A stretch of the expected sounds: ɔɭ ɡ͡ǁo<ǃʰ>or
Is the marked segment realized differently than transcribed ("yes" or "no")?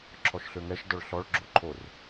no